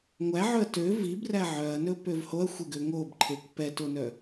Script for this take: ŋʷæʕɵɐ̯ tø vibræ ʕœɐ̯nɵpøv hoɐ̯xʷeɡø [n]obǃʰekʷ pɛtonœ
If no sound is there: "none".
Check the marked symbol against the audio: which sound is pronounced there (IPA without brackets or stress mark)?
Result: ŋ